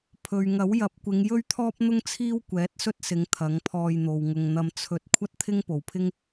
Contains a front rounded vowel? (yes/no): no